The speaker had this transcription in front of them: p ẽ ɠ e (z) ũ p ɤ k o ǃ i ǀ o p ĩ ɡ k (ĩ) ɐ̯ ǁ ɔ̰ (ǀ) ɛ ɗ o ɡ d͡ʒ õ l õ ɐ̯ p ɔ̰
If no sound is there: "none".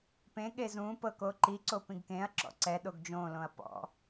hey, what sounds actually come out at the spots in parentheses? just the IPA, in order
z, ẽ, ǀ

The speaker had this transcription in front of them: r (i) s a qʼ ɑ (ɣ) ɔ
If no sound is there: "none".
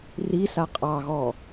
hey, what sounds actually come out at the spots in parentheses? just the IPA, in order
i, ɣ

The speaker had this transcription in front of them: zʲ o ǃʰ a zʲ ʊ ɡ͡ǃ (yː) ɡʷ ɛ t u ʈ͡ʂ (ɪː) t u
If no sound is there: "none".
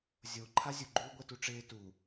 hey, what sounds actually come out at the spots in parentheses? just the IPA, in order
uː, ɪː

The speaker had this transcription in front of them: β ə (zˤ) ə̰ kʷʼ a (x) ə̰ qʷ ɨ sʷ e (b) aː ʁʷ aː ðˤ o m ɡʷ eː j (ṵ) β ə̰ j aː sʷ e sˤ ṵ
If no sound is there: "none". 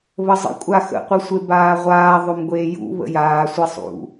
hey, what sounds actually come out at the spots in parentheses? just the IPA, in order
zˤ, x, b, ṵ

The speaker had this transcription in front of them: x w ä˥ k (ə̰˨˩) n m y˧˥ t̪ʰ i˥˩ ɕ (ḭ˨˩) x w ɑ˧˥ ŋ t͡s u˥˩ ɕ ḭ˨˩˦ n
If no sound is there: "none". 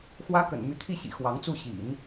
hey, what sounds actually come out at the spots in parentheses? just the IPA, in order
ə̰˨˩, ḭ˨˩

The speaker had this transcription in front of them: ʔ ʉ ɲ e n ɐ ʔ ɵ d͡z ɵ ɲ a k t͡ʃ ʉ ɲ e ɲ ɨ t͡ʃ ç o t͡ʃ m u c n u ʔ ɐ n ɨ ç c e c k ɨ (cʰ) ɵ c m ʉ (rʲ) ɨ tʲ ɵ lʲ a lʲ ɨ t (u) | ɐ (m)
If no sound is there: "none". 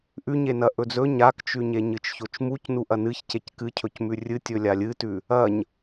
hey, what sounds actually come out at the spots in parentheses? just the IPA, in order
cʰ, rʲ, ʉ, ɲ

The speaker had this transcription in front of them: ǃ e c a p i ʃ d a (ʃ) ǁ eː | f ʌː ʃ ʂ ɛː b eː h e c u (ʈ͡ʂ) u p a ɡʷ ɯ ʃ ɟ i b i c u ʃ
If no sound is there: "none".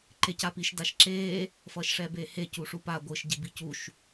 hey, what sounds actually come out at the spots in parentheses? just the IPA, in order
ʃ, ʂ

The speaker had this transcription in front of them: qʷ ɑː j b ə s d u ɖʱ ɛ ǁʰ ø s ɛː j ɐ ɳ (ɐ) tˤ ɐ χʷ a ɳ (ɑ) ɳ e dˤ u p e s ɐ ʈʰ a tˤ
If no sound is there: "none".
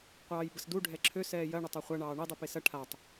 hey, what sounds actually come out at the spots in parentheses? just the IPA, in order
ə, ɑː

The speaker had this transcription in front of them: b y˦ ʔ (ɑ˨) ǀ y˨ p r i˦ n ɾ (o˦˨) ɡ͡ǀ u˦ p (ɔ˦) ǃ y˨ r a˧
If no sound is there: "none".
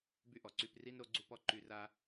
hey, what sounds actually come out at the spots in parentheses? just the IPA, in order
ɔ˨, o˦, ɔ˦

